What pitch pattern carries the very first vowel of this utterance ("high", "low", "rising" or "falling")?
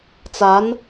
rising